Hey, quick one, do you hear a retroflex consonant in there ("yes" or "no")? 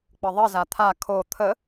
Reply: no